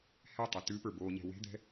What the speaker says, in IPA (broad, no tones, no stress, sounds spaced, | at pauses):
h ɛ tˤ ɛ t ʉ p ə˞ b o ɲ ɛ̤ w e̤ d̪ ɛ̤